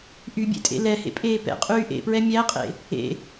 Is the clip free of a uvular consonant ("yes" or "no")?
no